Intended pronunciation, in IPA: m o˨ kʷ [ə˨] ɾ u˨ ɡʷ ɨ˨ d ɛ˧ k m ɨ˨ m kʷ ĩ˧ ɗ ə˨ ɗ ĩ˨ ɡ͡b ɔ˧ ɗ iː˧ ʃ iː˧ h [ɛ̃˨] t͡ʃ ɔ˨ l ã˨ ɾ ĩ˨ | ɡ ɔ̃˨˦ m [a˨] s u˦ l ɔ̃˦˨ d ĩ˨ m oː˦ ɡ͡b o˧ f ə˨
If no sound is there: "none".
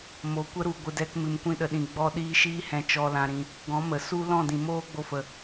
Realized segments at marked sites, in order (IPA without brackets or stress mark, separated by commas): ə˧, ɛ̃˨, ə˨